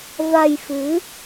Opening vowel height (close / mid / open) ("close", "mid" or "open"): open